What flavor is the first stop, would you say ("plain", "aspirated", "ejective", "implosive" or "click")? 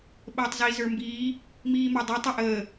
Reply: implosive